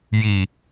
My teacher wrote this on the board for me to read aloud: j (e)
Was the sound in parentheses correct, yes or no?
no